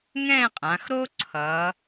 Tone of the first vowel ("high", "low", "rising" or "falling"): falling